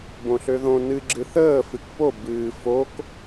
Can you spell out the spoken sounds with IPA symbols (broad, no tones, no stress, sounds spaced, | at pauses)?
b õ ɬ ø ð õ n ɨ ɡ͡ǁ ɨ θ əː f ɨ k p o b ɨː f o k